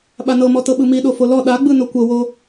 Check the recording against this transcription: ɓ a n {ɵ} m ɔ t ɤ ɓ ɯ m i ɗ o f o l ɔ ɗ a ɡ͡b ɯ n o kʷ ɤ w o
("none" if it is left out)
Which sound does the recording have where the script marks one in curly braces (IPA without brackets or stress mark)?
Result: ɤ